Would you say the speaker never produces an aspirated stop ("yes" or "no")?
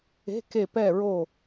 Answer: yes